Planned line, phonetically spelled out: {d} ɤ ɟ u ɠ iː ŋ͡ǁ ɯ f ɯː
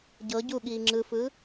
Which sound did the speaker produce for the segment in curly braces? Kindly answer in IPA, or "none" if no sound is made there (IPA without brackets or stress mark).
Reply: ɟ